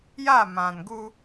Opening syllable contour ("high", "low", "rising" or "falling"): falling